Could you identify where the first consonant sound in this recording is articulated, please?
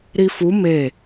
alveolar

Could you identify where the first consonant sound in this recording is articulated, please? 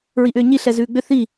alveolar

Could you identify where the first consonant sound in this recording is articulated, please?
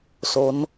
alveolar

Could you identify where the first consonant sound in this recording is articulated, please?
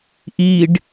glottal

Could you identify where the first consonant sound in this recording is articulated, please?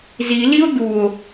alveolar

